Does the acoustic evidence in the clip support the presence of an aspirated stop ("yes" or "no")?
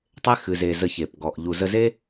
no